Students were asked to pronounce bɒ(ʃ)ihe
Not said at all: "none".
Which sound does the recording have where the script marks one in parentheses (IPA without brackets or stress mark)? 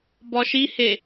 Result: ʃ